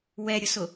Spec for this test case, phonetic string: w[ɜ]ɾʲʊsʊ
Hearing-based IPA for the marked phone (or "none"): ɛ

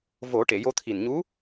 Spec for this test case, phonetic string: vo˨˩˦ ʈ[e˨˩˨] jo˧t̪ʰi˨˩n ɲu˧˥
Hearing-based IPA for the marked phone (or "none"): e˨˩˨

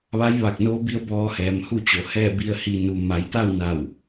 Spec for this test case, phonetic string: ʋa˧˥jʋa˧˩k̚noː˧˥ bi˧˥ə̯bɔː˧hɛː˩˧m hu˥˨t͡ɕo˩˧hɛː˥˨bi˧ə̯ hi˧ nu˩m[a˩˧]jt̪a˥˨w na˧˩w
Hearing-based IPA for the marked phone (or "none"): a˩˧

